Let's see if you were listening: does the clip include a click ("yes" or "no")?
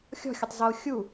no